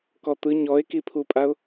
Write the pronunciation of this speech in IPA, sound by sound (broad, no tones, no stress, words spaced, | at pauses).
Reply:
kɔt̪ɯ ɲɔɪ̯kipʰupʼaʊ̯